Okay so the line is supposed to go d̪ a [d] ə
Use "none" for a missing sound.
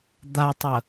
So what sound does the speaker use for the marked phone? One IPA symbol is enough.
tˤ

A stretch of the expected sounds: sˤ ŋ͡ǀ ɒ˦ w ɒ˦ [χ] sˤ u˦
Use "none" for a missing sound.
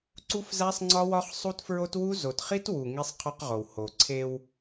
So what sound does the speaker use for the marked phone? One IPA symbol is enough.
χ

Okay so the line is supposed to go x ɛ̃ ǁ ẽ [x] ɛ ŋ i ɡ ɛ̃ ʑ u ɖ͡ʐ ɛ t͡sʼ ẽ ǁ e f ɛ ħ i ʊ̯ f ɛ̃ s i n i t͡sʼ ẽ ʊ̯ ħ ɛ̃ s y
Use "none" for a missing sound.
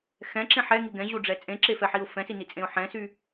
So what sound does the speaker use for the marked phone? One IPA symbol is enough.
ħ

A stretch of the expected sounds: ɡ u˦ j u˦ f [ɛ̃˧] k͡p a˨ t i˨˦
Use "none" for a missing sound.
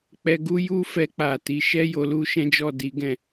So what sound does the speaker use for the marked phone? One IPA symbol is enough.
ɛ˧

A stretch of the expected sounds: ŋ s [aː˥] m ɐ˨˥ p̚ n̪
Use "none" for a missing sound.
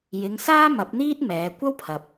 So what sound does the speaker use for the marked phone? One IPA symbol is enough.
aː˥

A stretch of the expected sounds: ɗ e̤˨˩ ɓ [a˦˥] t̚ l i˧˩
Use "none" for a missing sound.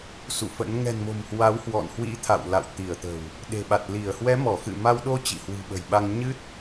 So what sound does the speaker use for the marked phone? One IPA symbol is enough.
a˨˩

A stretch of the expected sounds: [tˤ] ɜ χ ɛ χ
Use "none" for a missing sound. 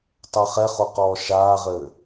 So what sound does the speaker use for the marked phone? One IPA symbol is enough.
tˤ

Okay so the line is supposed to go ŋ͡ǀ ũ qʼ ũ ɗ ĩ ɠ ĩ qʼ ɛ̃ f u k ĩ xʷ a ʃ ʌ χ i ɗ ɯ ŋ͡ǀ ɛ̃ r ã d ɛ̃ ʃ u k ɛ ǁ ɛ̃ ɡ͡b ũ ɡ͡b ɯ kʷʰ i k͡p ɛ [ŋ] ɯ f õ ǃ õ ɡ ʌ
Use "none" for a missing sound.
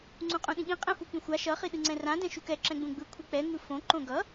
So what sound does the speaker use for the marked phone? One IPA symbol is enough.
ŋ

